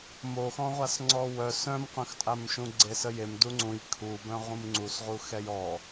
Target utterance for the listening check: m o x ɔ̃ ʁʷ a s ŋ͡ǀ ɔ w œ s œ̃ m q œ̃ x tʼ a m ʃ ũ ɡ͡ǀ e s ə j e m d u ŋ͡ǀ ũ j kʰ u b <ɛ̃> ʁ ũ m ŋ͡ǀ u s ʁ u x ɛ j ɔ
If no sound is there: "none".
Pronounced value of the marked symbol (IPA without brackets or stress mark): œ̃